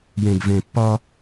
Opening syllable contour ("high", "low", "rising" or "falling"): low